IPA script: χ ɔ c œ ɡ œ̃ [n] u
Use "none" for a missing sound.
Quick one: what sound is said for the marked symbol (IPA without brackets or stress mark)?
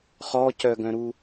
ɾ